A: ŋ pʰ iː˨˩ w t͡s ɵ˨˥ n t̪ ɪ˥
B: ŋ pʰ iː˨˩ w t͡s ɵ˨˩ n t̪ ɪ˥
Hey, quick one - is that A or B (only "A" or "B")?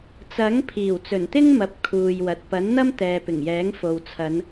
B